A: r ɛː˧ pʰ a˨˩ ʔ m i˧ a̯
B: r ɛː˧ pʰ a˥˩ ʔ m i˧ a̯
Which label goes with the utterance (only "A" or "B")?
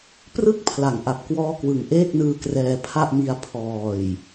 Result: B